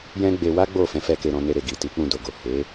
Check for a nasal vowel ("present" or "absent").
present